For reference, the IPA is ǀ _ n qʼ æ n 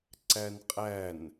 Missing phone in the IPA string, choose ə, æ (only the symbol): æ